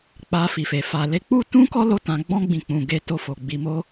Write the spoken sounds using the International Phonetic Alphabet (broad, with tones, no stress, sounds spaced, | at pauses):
k͡p a˧ f i˨ f e˨ f a˨ l e˧ k͡p u˦ t ũ˦ k ɔ˦ l o˦ t ã˧ ɡ͡b ɔ̃˦ ɡ͡b ĩ˧ k͡p ũ˨ ɡ e˧ t o˧ f o˨ ɡ͡b i˨ m o˧